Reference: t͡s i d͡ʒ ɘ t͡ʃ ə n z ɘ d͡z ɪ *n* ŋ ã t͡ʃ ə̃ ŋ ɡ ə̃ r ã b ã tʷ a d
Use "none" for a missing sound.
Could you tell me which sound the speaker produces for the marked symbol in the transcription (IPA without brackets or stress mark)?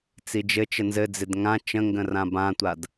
d